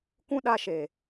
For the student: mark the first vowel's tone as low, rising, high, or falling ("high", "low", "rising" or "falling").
high